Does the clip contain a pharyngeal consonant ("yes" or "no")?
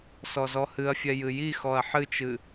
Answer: yes